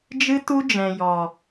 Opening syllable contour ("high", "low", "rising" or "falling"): high